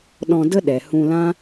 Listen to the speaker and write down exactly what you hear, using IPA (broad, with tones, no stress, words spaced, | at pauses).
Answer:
ɗɔ̃˧də˦ ɗɛ˨hũ˧lã˦